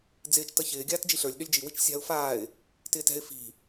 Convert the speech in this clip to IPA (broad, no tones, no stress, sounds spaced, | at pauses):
d͡z ɪː t͡ʃ t ʌ ç ɪː ɡʲ aː t d͡ʒ i ɬ ə˞ lʲ ɗ ø lʲ d͡ʒ i w i t͡ʃ sʲ a̤ ʊ̯ f aː ɪ̯ | t ɪː t ɛ̤ ɪ̯ f i̤